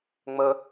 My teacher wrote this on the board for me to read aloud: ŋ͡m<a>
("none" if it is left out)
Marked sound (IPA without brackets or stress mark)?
ə